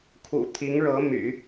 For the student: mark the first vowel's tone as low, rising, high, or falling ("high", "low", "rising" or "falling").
low